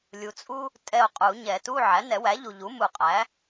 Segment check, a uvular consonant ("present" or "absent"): present